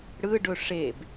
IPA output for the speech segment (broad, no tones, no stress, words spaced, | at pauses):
ɽɯɖɵ ʂeb